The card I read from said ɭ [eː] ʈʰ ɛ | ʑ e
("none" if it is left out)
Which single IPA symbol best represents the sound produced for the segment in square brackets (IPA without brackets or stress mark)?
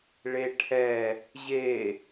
e